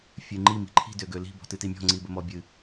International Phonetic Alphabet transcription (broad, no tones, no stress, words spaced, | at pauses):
fʲɨŋ͡ǃi mi̤ǃʰi̤ døɡøli̤ bɔ̤tɨtimʲɔ̤ ŋ͡ǀibəmɔbʲɨ